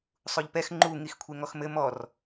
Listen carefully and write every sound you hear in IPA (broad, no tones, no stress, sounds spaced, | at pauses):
sˤ u ʎ p ɛ x ŋ͡ǃ u ŋ i x kʷʰ e ŋ ɔ x m ɘ m ɔ r